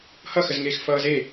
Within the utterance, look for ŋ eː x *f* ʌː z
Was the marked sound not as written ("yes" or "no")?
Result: no